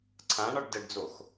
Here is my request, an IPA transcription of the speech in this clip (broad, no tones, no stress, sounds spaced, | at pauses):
ǀʰ ã ɳ ɒ ɖ d ə ɖ d͡z o x